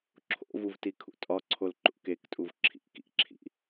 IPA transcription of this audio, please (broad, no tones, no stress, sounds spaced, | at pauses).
ǁʰ o̰ v u v t i kʰ ṵ tʼ ɒ ǀʰ o l ǃ ṵ k e k tʼ u v ǁʰ ḭ k ḭ ǁʰ ḭ